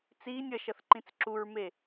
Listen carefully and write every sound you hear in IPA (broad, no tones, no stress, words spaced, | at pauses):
t͡siːnʲ ʌʃʌθ ǃĩt͡sǁuɹme